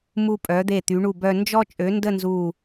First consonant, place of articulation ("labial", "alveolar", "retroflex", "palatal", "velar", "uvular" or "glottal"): labial